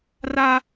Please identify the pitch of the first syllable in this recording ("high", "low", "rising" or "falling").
high